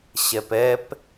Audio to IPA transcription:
ɕ ɛ p ɛ p

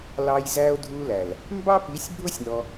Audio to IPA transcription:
l ɑ˧ j z æ˧ o̯ dʱ u˧ l æ˨ l | m b ɑ˦ p i˨˦ sʲ bʱ ʊ˦ sʲ n ɔ˧

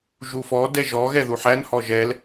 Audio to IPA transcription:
ʒ u f ɔ d ɛ ʒ ɔ ɣ ɛ ð u ħ æ n h ɔ ʒ ɛ l

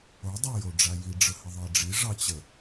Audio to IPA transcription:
o dˤ a j o ɖ͡ʐ a j i ɖ͡ʐ ə h ə ðˤ ɑ ɖ͡ʐ i ʐ ɑ t͡ɕ ə

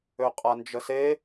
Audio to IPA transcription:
ø qʼ a n d͡ʒ ə s e

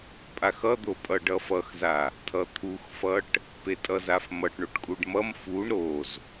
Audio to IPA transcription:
pʼ a x ʌ d̪ o pʼ ʌ ɖ ʌ f ʌ x z a | tʰ ʌ t̪ʰ u x f ʌ ʈ | p e tʼ ʌ z a f m ʌ ʈ ɳ o ʈ kʼ u ɖ m ʌ m f u ɳ ɾ o z

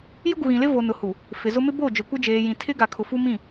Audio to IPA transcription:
j ʊ˦ ɡ u˨ ɣ ĩ˨ l ɪ˦ v o˨ n ʊ˨ h u˨ | f ɪ˨ z ʊ˦ m ɪ˦ b o˦˨ d͡ʒ ʊ˨ kʷ ɪ˦ d͡ʒ eː˨ j ĩ˨ tʰ ɪ˦ ɡ a˨ kʰ ʊ˨ f u˦ m ĩ˦˨

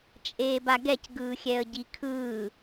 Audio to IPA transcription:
t͡ʃʼ eː b a ɡ ɛ c ɡ ɯː xʲ ɛ ə̯ ɟ i kʰ ɯː

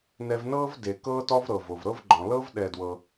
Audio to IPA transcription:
n ɛ˧ v n ɤː˥ v d e˩ k ɤː˥ t ɔ˥ v ɾ ɤ˩ v o˩ v ɾ ɤ˥ v ɡ͡ǃ ɔ̃˩ l ɤ˥ v ɗ ɛ˧ d w ɤ˧

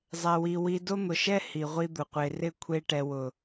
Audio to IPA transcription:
zˤ ɛ˧ w i˧ w i˧ d o˦ n̪ ʊ˨ ʃ ɛ˦ h i˨ ʁʷ i˧ d̪ ʊ˨ qʷ e˨ r ɪ˦˨ kʷʰ e˧ ʈ ɛ˨ w ʊ˨

